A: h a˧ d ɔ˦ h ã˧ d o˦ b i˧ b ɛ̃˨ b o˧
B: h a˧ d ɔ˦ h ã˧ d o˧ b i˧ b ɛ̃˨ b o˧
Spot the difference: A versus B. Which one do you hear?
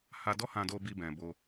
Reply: B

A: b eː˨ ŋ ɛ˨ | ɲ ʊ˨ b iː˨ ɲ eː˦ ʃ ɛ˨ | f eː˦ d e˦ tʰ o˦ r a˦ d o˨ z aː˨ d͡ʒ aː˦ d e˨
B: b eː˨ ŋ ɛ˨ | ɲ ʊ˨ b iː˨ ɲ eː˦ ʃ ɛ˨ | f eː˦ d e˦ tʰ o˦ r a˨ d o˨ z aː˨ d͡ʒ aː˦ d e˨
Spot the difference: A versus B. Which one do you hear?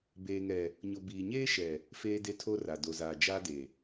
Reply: B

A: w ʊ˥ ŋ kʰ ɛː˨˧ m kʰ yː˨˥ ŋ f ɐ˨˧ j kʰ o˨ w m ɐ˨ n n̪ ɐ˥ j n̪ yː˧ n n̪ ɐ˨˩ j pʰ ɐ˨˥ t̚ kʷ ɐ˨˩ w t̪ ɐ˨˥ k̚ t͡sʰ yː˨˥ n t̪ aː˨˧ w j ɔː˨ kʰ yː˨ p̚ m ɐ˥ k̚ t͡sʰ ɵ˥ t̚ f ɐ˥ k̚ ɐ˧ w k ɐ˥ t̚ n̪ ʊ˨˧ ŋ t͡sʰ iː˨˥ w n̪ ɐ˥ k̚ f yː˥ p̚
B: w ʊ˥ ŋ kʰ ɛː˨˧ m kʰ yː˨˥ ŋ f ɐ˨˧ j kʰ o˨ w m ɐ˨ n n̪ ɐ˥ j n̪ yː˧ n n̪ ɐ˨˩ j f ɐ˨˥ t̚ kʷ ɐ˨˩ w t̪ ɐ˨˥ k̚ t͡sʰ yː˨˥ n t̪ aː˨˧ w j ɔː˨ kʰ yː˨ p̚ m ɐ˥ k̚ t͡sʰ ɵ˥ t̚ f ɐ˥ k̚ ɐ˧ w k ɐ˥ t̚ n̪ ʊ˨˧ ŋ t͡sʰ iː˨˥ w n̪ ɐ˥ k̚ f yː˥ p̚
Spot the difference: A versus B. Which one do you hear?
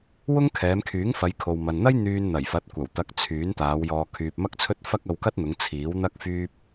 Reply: B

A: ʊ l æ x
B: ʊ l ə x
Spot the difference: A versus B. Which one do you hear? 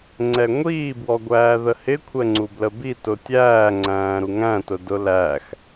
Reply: A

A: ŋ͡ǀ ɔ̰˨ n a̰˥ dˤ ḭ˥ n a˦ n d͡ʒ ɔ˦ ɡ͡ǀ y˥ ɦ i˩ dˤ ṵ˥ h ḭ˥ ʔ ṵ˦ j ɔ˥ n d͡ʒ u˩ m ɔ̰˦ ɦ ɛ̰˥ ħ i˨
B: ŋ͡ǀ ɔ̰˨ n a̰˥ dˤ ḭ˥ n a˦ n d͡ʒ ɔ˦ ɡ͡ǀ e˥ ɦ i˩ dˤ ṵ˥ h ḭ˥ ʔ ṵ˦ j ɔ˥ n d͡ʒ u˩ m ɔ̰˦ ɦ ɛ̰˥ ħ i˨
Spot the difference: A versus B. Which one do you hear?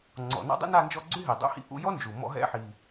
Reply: A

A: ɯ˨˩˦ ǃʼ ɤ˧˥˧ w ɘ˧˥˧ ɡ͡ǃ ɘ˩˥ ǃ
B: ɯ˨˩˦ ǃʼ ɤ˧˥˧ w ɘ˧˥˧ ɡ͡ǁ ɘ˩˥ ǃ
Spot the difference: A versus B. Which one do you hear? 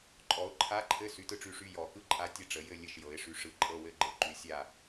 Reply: A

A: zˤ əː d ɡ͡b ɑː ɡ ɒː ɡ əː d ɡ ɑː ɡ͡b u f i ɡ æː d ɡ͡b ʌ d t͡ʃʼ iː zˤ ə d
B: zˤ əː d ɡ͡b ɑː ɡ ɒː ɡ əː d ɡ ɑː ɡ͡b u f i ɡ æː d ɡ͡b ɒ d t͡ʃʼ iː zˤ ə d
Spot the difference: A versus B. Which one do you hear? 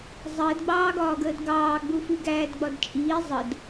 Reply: B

